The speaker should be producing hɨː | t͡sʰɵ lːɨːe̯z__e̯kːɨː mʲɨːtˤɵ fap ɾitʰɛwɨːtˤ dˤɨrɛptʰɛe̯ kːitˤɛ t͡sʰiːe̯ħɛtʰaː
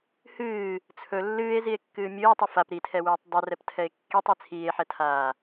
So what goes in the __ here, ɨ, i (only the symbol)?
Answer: i